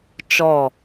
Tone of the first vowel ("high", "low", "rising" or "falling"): falling